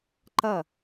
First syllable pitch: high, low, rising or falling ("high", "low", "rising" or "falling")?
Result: falling